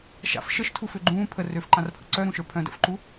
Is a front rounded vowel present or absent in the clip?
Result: present